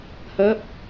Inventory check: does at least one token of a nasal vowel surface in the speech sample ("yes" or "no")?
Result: no